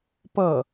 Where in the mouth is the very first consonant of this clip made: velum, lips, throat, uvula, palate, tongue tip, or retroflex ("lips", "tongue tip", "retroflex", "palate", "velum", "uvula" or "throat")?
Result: lips